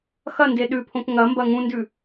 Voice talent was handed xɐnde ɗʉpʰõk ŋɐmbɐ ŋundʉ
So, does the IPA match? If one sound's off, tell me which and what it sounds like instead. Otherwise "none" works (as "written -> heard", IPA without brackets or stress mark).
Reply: u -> ũ